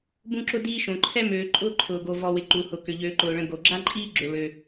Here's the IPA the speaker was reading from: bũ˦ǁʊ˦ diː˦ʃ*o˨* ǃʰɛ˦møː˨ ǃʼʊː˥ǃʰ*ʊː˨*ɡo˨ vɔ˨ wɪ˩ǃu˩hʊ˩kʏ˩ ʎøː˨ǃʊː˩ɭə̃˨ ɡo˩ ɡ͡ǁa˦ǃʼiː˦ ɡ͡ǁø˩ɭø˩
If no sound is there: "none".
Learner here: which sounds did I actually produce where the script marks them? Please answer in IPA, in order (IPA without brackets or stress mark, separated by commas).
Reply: õ˨, ʊː˨